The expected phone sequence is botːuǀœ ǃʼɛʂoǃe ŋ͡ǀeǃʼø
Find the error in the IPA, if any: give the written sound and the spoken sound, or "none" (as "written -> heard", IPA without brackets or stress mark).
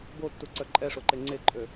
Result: none